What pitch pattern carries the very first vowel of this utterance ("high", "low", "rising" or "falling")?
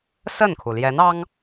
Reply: falling